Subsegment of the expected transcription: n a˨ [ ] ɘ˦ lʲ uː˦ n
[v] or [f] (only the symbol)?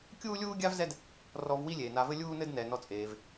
v